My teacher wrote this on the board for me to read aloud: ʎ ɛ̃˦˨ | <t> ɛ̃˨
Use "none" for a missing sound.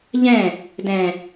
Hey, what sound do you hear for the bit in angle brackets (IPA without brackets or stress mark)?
d